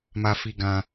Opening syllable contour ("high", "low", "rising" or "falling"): high